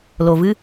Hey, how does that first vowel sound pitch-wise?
low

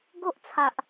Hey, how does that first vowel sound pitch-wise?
high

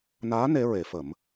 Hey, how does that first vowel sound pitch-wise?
rising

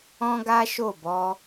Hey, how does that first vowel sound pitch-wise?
high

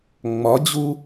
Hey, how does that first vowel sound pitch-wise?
rising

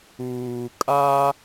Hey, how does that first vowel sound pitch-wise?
low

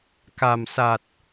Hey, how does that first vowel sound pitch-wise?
low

